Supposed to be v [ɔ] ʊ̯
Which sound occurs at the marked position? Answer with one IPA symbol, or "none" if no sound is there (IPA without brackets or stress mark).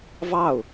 ɑ